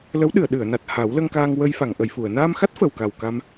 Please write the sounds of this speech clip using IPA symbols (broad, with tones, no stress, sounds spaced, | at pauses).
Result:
l ə˧˥ w ɗ ɨ˨˩˨ ə̯ ɗ ɨ˨˩˨ ə̯ n a˨˩ t̚ h a˨˩˦ w l ə˧ ŋ k aː˧ ŋ w ə˧ j f a˨˩˨ ŋ ʔ ə˨˩˨ j f u˨˩˨ ə̯ n aː˧ m x a˦˥ t̚ f ə˨˩ w k a˨˩ w k a˧ m